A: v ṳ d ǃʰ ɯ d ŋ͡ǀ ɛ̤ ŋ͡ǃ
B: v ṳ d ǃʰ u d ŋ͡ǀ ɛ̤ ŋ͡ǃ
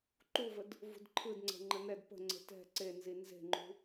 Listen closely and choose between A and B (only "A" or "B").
A